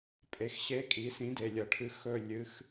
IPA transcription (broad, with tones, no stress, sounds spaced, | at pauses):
pʼ e˩˥ x ɕ e˧˥ kʼ i˩˥ s ĩ˩˥ d e˨˩ lʲ ɐ˧˩˧ ʈʰ ɨ˧˥ x ɵ˥˨ lʲ ɨ˧˥ x